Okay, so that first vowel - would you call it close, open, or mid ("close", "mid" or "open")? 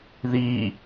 close